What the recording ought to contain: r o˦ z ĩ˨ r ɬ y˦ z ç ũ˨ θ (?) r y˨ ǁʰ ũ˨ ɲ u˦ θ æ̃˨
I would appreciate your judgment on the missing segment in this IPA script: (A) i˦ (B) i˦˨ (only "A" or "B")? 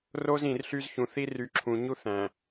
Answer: A